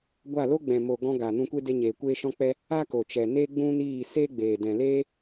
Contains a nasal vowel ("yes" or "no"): yes